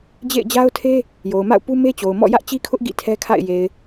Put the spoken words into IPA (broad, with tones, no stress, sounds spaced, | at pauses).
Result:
d͡ʑ ḛ˦˨ ɪ̯ d͡ʑ a˦ ʊ̯ tʰ e˦ | j o˨ ʊ̯ m a̰˦˨ ʊ̯ p u˦ m e˦ t͡ɕ o˨ ʊ̯ m ɔ̰˦˨ j ä˦ ʔ t͡ɕ i˦ kʰ ʊ˦ ʔ ɡ ḭ˦˨ tʰ ɛ˦ kʰ a̰˦˨ ɪ̯ j e˨ ɪ̯